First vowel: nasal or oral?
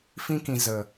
nasal